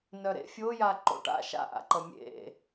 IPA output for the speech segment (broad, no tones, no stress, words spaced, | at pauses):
nœɾḛ fʲoja ǃo̰ʈa̰ ʃa̰ʔa̰ǃʌ mʲḛ